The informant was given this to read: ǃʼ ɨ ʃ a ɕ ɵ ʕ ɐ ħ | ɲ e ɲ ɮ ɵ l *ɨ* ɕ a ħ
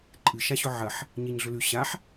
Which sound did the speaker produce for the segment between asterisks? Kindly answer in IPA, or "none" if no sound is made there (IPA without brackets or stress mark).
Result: ʉ